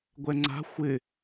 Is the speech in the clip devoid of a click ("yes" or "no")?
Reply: no